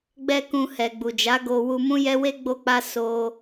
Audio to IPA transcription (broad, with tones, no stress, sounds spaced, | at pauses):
ɡ͡b ɛ˦ k ũ˧ h ɛ˨ ɡ͡b u˨ d͡ʒ a˨˦ ɡ o˧ w u˧ m ũ˦ j ɛ˦ w e˦ ɡ͡b o˦ k͡p a˦ s o˦